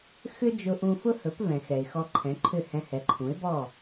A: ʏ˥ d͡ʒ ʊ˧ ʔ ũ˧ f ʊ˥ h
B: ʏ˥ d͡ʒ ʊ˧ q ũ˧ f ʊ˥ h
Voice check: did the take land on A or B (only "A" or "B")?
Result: A